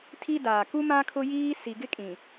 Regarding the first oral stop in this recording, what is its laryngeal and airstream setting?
aspirated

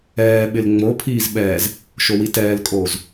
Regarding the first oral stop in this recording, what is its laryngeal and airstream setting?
implosive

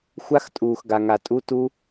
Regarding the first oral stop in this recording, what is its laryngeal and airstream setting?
ejective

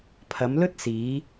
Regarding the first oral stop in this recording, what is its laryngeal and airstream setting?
aspirated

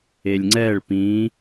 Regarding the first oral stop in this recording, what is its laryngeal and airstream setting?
click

